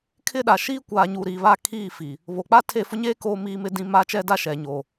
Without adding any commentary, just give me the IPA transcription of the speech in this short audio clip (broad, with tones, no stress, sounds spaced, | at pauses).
kʰ ɪ˦ ɗ a˨ ʃ iː˦ kʷ aː˨ ɲ uː˨ ɾ i˨ β a˦˨ kʰ iː˦˨ f i˨ | β o˨ k͡p a˦ tʰ e˦˨ f ʊ˦ ɲ eː˦ k oː˦ m iː˦ m ɪ˦ d ĩ˦ m aː˦ t͡ʃ ɛ˦ d a˦ ʃ ɛ˨ ɲ oː˨